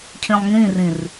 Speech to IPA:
cʰĩlˠŋĩrĩr

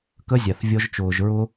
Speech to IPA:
kə˦zʲa˨θvʲɔ˧ʒt͡ʃʊː˨ʒ ɹʊ˧

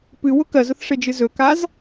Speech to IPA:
pɨwʊ kɜzʊθʂed͡ʒɨ zɵkaz

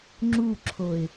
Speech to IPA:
ŋ͡ǁuǁʰoɪ̯

